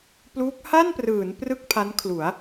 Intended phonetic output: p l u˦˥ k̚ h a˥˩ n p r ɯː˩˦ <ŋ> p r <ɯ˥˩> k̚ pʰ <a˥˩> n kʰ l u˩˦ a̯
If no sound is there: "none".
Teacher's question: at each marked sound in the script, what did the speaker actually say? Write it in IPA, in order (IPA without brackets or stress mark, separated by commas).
n, ɯ˥˩, a˦˥